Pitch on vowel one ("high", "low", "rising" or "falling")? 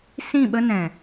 falling